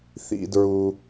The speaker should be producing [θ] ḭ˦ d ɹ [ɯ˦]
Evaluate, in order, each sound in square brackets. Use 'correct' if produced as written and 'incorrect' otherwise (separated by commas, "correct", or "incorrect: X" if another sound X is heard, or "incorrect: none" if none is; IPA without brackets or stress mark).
correct, incorrect: u˦